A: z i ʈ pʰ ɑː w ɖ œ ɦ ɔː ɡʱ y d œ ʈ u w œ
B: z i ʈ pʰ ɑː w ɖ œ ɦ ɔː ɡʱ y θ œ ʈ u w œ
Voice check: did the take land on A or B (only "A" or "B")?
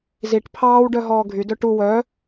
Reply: A